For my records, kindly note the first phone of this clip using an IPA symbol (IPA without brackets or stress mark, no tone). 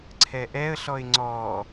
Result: ǀʰ